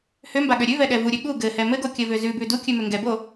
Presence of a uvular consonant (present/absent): absent